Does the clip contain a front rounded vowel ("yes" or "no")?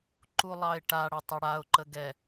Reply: yes